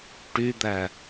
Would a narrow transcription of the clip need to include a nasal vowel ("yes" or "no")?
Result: no